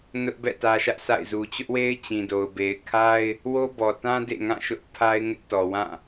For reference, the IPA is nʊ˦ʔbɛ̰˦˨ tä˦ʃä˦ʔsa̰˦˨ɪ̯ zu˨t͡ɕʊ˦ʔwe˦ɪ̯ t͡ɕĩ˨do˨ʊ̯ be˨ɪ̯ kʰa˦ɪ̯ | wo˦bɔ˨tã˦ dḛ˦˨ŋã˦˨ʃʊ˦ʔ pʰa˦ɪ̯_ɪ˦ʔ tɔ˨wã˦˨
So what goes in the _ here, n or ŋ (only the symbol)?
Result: ŋ